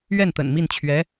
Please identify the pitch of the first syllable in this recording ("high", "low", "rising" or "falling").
falling